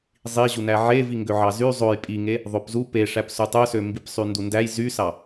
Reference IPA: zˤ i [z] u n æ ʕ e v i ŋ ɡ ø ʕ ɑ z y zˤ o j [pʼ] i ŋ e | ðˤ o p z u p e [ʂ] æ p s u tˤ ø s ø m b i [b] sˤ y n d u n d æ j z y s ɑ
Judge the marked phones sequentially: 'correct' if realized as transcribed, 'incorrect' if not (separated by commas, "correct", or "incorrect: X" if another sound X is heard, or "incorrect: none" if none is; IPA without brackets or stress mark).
incorrect: ʑ, correct, correct, incorrect: p